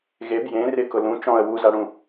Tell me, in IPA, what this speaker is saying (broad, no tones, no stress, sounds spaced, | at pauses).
ɣ e b j ẽ r ɪ k ʊ l ũ t͡ʃ ɔ̃ ə̯ w u z a ɽ ũ